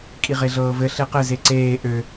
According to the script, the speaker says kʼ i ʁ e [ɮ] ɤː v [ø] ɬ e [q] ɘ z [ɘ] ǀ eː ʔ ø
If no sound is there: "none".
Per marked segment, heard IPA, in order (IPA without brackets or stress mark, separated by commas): ɮ, ɘ, q, e